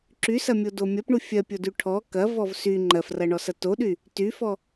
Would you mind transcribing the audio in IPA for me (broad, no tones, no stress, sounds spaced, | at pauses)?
ǁ y s ɐ mʲ o d o mʲ ɐ p ɳ u fʲ ɜ pʲ o d y ʈʰ ɔ k ɐ v ɔ v s y ŋ͡ǃ ɜ f r ɐ ɳ ɔ s ɐ t o ɗ y | t y f ɔ